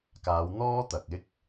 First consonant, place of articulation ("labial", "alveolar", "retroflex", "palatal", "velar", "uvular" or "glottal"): velar